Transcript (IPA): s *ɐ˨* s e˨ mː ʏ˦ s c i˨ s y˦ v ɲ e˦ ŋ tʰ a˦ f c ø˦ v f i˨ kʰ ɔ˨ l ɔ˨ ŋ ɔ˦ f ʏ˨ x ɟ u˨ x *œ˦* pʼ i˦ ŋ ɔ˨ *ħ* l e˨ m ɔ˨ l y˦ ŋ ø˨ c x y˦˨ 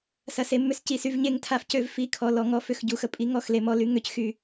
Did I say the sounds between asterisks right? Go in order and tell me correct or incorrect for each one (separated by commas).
correct, incorrect, incorrect